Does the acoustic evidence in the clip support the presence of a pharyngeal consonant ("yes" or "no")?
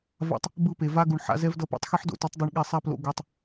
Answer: yes